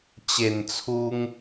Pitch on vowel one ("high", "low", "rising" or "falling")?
low